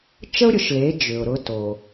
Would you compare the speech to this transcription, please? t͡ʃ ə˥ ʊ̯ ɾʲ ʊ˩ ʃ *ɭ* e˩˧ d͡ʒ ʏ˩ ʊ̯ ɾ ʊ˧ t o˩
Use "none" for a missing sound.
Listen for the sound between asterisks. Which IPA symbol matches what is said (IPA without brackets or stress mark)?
l